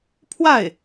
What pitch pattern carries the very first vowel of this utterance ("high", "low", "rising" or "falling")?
falling